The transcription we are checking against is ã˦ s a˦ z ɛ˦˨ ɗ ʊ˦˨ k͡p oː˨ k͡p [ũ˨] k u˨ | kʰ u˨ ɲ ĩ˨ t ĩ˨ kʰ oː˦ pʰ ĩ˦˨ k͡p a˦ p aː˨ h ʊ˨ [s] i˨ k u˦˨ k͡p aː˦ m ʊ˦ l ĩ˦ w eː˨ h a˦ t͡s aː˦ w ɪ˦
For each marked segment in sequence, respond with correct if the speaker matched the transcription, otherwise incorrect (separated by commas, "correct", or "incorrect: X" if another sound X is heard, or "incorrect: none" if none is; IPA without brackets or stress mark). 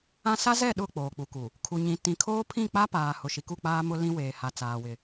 incorrect: u˨, incorrect: ʃ